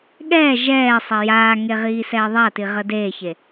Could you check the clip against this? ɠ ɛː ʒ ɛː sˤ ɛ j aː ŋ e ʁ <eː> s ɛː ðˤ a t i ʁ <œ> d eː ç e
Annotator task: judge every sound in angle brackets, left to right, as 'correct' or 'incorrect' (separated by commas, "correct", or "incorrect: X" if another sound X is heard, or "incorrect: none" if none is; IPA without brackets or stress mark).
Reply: incorrect: iː, incorrect: ə